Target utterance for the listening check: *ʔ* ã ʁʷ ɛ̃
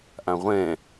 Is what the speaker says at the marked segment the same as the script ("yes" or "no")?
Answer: yes